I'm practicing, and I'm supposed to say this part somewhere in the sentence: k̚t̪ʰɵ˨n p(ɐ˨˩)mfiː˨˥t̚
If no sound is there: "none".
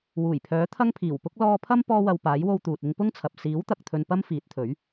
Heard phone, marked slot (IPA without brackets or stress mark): ɐ˥